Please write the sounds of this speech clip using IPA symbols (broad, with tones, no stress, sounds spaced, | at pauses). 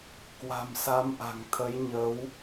k w a̤˨˩ m s a˨˦ m ʔ a̤˨˩ ŋ t̪ʰ ə˨˦ j ɲ ə˨˦ w